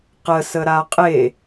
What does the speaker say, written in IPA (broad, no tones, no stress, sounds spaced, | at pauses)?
q ə s ə ɾ a qʼ e